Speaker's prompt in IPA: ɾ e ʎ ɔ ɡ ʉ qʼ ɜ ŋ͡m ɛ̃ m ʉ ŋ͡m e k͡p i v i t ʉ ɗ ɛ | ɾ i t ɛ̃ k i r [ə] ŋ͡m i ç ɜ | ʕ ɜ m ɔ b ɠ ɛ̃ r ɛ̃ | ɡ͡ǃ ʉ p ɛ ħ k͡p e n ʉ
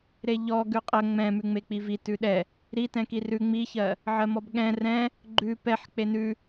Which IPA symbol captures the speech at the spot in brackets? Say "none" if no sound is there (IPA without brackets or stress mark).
ʉ